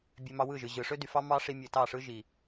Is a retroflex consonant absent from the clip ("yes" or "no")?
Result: no